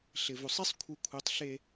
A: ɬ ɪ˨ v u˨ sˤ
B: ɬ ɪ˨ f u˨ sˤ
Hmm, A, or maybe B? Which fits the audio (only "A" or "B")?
A